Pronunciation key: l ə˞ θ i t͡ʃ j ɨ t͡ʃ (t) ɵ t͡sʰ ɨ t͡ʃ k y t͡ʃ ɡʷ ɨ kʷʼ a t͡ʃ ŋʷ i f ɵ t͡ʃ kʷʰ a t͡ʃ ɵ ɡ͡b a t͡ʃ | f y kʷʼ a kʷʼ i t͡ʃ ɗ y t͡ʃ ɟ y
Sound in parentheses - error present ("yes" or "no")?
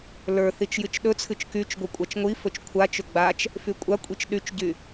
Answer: yes